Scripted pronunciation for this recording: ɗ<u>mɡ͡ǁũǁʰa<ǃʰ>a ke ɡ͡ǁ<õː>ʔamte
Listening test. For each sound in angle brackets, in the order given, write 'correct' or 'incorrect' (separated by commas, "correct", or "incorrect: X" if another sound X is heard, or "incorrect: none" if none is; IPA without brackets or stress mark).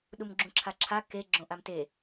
correct, incorrect: ǁʰ, incorrect: õ